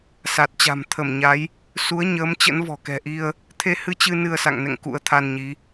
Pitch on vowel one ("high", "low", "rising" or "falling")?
low